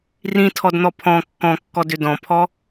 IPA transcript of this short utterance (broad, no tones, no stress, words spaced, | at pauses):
rĩtʰɔdn̪ɔ pʰɔ̃ kːɔ̃kːɔdʏ dɔ̃pʰɔ